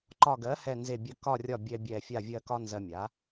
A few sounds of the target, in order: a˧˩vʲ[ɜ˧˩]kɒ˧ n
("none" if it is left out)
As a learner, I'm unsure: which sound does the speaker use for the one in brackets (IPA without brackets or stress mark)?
ɜ˧˩